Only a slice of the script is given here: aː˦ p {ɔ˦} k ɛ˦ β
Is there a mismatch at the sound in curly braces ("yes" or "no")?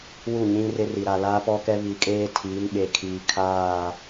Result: no